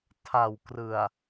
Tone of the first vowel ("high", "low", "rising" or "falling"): low